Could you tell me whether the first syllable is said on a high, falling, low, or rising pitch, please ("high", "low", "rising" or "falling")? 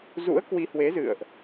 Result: rising